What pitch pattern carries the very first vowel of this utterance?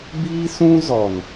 high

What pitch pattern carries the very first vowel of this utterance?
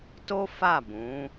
high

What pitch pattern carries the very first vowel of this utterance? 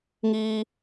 low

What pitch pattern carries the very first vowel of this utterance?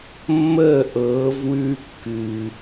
falling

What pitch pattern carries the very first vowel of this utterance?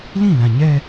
falling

